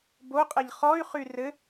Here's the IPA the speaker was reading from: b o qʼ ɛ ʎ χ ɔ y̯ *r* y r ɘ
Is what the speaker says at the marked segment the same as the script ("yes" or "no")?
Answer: no